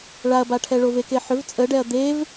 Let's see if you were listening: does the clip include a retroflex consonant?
yes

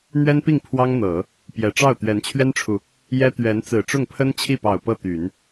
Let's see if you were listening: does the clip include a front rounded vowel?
yes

